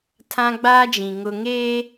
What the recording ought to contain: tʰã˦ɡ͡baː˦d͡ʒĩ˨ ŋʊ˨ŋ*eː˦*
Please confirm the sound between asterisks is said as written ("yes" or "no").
yes